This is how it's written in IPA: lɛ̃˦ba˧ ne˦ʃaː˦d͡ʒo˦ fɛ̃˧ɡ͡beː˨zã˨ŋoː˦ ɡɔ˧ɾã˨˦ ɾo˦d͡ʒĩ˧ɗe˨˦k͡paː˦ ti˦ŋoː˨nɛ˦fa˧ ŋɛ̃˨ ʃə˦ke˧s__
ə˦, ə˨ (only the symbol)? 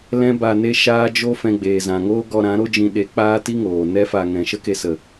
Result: ə˨